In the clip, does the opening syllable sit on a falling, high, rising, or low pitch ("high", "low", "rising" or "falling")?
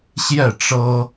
falling